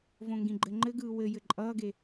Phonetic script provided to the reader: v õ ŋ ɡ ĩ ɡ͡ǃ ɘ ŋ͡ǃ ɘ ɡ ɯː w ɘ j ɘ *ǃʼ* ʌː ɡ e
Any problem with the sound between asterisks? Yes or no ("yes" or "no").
no